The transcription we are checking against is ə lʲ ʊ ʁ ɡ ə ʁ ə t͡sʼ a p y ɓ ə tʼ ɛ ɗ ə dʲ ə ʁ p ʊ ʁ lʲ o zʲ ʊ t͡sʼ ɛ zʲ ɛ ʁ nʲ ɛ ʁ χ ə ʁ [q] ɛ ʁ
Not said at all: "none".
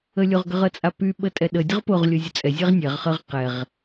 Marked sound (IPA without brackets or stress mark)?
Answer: q